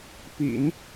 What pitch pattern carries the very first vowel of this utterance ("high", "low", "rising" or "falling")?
low